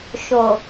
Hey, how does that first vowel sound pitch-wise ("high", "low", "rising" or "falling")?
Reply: low